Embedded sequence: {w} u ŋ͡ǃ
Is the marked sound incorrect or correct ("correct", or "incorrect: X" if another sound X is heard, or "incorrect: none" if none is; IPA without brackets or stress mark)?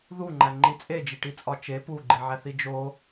incorrect: ð